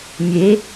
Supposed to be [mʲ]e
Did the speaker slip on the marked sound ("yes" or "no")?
no